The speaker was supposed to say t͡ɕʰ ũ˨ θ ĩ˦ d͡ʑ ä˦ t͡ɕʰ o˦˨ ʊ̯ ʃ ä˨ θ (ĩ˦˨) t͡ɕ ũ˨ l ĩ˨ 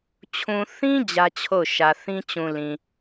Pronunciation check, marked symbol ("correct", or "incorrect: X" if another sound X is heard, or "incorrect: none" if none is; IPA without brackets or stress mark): incorrect: ĩ˦